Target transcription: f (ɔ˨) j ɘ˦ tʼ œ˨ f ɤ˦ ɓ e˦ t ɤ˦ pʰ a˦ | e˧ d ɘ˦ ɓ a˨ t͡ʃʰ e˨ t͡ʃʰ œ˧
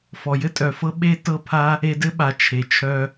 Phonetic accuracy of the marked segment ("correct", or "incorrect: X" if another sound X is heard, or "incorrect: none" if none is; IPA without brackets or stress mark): correct